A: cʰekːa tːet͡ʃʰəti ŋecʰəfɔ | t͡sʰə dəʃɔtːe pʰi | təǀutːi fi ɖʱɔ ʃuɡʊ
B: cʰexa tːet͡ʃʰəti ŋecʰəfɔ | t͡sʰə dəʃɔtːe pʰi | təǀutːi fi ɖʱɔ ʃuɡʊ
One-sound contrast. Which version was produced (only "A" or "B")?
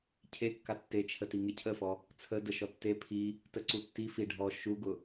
A